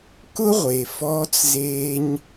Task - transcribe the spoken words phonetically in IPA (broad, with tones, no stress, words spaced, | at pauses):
kʊ˦ʁʷe˨ fɔː˦t͡szeː˦ɲ